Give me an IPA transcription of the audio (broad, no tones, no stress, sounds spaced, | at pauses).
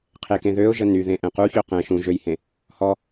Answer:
qʰ e k ẽ ð ø ʊ̯ ʒ ə n y ð ẽ ʔ ɛ̃ q u ç ø q ɛ̃ ʃ ũ ʒ ø j h ẽ | h ɔ